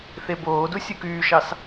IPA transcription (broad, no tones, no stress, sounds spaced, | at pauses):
θ e b oː d u sʲ u k yː ʃ ɑ s